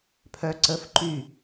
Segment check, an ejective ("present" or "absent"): absent